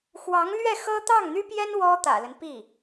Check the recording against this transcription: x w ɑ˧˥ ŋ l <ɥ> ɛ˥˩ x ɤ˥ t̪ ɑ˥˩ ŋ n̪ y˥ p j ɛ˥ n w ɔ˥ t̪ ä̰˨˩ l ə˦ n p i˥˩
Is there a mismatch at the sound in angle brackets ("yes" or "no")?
no